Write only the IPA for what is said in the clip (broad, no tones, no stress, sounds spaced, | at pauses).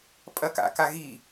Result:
pʼ ɐ k a̰ k a ɣ i